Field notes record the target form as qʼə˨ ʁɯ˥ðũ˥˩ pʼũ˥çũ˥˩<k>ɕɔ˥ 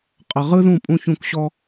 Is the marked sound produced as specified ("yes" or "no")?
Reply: yes